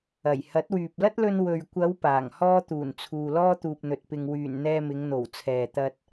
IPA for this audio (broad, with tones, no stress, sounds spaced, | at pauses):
ɐ˨˩ j h ɐ˨˥ t̚ w yː˨ p̚ l ɐ˥ t̚ l ɵ˧ n w ɵ˨ ɥ kʷ ɐ˨˧ w p aː˨˩ ŋ h ɔː˥ t̪ uː˨˩ n t͡sʰ uː˨ l ɔː˥ t̪ uː˨ p̚ n̪ ɵ˨ t̚ p ɪ˨ ŋ w yː˨˩ n n̪ ɛː˧ m ɪ˨˧ ŋ n̪ o˨˩ w t͡sʰ ɛː˨ t̪ ɐ˧ t̚